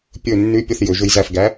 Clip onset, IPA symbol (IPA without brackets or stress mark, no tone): pʲ